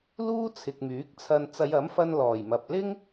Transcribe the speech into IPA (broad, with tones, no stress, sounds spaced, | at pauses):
l uː˥ t͡sʰ ɪ˨ k̚ m yː˨˥ k̚ t͡sʰ ɐ˧ n t͡s ɐ˨˧ j ɐ˨˥ m f ɐ˧ n l ɔː˨˩ j m ɐ˨ p̚ l ɪ˥ ŋ